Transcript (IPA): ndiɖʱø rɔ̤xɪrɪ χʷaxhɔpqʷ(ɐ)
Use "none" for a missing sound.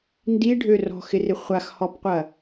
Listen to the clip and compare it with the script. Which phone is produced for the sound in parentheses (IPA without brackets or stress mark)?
ɐ